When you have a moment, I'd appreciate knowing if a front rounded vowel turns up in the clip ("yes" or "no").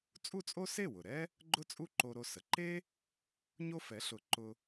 no